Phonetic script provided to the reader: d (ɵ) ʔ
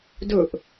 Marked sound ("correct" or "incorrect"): correct